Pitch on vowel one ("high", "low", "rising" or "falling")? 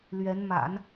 rising